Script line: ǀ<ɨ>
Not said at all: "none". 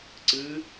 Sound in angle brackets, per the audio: ɨ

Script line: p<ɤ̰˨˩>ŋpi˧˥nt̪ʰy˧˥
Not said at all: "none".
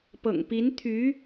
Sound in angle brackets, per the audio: ɤ̰˨˩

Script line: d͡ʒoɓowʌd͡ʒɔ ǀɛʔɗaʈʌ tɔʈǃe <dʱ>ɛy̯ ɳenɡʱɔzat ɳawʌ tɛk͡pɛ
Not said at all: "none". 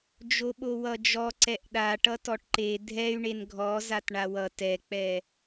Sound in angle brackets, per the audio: dʱ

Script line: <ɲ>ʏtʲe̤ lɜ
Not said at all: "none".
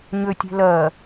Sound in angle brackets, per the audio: ɲ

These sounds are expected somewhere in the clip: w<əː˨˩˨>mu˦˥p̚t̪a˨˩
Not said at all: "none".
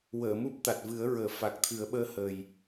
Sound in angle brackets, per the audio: əː˨˩˨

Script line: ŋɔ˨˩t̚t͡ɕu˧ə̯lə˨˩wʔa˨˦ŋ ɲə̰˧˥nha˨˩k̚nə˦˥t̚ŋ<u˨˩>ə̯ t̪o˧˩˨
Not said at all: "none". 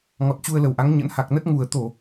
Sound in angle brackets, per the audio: u˨˩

